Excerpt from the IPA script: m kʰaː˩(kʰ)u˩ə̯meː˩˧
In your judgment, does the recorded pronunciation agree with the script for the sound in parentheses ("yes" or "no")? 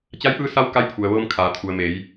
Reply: no